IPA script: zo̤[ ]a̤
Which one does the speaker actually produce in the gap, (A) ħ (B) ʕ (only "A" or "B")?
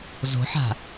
A